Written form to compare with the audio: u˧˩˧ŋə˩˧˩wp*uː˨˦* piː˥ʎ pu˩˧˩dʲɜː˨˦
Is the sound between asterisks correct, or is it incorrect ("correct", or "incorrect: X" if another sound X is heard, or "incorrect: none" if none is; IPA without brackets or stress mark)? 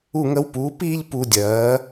correct